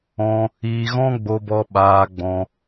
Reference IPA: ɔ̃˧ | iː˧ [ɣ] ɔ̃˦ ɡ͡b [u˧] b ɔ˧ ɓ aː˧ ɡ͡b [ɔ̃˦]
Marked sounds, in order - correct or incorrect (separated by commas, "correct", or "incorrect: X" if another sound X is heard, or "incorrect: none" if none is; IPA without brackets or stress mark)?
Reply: correct, incorrect: o˧, incorrect: ɔ̃˧